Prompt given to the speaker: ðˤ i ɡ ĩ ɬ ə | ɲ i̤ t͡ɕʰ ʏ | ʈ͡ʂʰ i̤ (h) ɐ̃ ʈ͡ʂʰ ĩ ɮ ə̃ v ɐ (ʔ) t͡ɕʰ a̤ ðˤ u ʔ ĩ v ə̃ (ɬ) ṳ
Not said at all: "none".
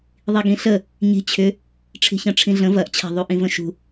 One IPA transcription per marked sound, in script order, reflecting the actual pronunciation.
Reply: ç, ʔ, ʃ

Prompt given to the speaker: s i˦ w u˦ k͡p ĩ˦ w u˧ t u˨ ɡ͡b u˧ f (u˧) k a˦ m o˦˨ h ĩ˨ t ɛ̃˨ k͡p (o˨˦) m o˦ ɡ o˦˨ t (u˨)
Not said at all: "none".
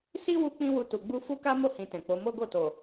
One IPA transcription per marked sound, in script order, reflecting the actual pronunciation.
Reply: u˦, o˨˦, o˨

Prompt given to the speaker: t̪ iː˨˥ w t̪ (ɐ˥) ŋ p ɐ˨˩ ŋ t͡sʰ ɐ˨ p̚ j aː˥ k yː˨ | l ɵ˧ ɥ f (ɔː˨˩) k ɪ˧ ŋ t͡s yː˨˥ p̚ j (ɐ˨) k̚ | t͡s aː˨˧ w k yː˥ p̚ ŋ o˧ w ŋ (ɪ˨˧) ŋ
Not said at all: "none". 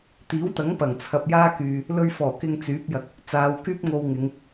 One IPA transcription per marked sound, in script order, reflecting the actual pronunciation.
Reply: ɐ˨˥, ɔː˨˩, ɐ˨, ɪ˨˧

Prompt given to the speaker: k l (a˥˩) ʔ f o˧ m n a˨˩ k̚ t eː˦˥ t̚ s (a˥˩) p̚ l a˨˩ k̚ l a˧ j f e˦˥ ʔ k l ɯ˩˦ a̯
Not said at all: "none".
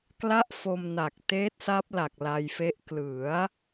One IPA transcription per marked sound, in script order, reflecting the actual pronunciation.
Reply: a˥˩, a˦˥

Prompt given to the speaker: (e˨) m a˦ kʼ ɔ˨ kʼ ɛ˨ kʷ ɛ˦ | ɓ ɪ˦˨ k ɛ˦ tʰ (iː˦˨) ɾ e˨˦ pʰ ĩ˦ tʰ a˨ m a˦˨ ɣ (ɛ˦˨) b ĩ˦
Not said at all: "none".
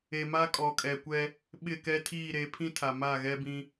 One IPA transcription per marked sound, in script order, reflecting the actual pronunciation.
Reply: e˨, iː˦˨, ɛ˦

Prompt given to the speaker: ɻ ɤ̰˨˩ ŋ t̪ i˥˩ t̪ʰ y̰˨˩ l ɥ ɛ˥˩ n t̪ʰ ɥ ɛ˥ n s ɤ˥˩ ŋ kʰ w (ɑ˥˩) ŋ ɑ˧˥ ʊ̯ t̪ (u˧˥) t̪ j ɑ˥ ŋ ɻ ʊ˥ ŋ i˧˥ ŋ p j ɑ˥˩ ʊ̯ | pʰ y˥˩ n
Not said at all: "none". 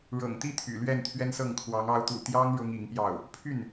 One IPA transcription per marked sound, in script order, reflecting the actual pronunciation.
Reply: ɑ˧˥, ṵ˨˩

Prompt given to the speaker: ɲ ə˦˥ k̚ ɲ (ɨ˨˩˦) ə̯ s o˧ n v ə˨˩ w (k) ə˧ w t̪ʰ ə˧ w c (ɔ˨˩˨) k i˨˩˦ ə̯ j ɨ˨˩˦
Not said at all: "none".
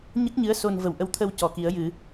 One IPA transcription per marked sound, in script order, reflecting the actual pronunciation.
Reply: ɨ˧˥, ʔ, ɔ˨˩˨

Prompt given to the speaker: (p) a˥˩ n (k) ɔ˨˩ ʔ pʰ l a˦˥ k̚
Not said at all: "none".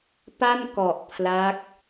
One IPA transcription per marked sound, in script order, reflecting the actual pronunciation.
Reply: p, k

